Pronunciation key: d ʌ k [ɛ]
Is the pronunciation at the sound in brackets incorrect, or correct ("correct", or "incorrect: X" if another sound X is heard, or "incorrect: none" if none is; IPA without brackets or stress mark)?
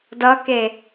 incorrect: e